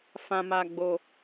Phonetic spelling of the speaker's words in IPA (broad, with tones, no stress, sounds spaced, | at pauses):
f ã˧ m a˧ ɡ͡b o˧